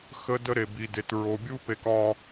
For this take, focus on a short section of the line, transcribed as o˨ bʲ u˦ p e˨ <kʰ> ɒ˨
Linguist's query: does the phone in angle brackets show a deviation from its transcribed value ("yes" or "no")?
yes